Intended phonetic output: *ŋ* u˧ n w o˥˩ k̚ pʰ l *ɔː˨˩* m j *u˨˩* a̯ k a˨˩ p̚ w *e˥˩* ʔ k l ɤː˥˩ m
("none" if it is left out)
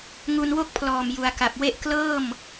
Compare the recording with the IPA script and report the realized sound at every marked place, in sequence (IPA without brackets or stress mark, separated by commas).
ŋ, ɔː˨˩, u˩˦, e˥˩